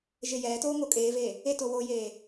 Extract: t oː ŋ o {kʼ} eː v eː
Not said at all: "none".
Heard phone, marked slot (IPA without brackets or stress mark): kʼ